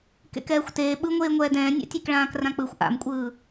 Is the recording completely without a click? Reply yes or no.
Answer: yes